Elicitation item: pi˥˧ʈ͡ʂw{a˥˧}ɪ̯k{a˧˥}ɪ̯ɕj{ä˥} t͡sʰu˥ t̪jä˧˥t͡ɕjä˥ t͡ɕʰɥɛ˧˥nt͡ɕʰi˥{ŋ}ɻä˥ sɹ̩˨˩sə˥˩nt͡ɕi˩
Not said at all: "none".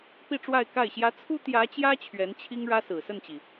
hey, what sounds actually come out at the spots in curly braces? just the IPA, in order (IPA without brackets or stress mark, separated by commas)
a˥˧, a˥˩, ä˥, ŋ